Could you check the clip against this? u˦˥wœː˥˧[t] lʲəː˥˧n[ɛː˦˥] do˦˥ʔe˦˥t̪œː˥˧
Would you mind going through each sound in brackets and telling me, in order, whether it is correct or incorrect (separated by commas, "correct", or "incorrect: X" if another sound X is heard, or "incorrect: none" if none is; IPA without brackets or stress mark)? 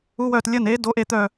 correct, incorrect: eː˦˥